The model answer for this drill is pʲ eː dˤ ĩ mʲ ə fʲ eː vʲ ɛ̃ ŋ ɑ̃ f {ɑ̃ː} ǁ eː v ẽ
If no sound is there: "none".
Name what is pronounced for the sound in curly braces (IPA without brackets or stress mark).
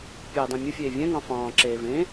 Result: ɑ̃ː